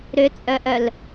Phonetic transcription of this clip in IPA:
ɾ ʏ t͡sʼ œ ʔ œ l

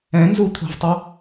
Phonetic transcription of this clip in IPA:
ɛ̃ n z u t̪ʰ o̤ v tˤ u

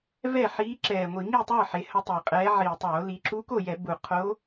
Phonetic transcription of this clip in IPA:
v ɛ˥˨ ħ iː˧˥ ǁ ɛː˨˩ ŋʷ i˧˩˧ ŋ i˥˨ tˤ ə˞˥˨ ħ e˩˧ h ə˧˥ tˤ e˨˩ qʼ ɛː˧˥ ʕ iː˨˩ tˤ oː˧˩˧ l i˩˧ ǁ u˧˥ k o˥˨ j ɛ˧˩˧ b u˨˩ qʰ o˧˥

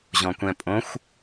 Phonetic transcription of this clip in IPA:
ʑ ɔ̃ kʷ ɛ̃ pʼ õ xʷ

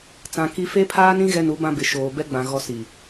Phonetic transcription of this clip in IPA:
t͡s ã˨ k i˦ f e˦ pʰ aː˦ n ĩ˦ ɣ ɛ˦ n u˨˦ b ã˦ b ɪ˨ ʃ oː˨ b ɛ˦ ɡ͡b ã˨ ɣ ɔ˦ s i˨

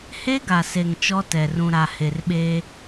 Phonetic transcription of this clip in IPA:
h e˦ ɡ a˨ s e˨ ŋ t͡ʃ ɔ˦ t ɛ˨ r ũ˨ ɾ a˨ h e˨ r ɓ e˦

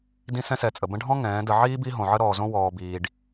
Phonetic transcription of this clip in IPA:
d ĩ˦ s ɛ̃˦ s ɛ˨˦ t͡sʼ ə˨ b ə̃˧ ɖʱ ɔ̃˦ ŋ ɛ̃ː˨˦ d ə˧ ʕ iː˦ b i˧ ɦ õ˨ ʕ ə˧ ɾ ɔː˨ z õ˧ w ɔː˨ b iː˨ ɖ

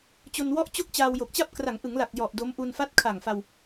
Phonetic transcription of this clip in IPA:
t͡ɕ o˧ n w ɔ˥˩ ʔ t͡ɕ o˥˩ k̚ t͡ɕ aː˧ w j o˨˩ k̚ t͡ɕ a˥˩ p̚ k r a˩˦ ŋ ʔ ɯ˩˦ ŋ l a˨˩ k̚ j ɔ˨˩ ʔ d o˦˥ m ʔ u˧ n f a˦˥ t̚ kʰ a˨˩ ŋ f a˧ w

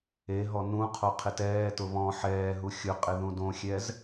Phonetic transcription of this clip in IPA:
e ɦ ɔ n ũ qʰ o qʰ ɪ t ɛː t ʊ β ɔ̃ ħ ɛː ɦ u xʲ ʊ qʼ ɪ ð ũ d õ xʲ ɛ z

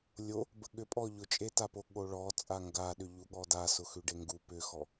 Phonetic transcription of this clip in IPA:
lʲ o | b ə ɠ ʏ pʼ ɔ ʎ ʊ t͡ʃʼ e t a p o ɠ o ɭ ɔ t͡sʼ a ŋ ɡ a ɗ ʏ ʎ u ɠ ɔ d a s ʊ x ʉ ɖ e ŋ ɡ u p ʏ x ɔ

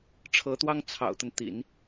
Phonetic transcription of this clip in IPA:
ʈ͡ʂʰ ɤ˧˥ t̪ w ɑ˥ ŋ t͡sʰ ɑ̰˨˩ ʊ̯ t̪ ə˦ n t̪ ḭ˨˩˦ n

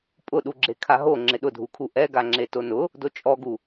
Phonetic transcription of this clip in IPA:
pʼ ʊ ɗ u ɡ͡ǁ e kʰ a ɦ o ŋ͡ǁ ɪ ɗ ʊ dʱ u kʰ u ʔ ɛ ɡ a ŋ͡ǁ e t o n ʊ | d o t͡ʃʼ ɔ ɡ u

